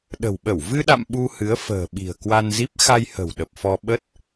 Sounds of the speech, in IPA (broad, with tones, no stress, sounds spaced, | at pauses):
ɗ ə̤˨˩ w ɓ ə˧˩ w v ɨ˧ ɗ a̰˧˨ m ɓ u˧ h ɨ˨˦ ə̯ f ə̤ː˨˩ ɓ i̤˨˩ ə̯ k w a˧ n z i˦˥ p̚ x a˧ j h ə̤˨˩ w ɗ ə˨˩ p̚ f ɔ˧ ɓ ə˦˥ t̚